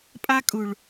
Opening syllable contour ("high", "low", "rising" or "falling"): high